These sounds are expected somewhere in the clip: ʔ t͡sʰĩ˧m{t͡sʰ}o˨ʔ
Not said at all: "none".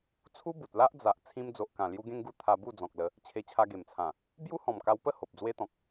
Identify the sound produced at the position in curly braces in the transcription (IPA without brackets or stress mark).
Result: d͡z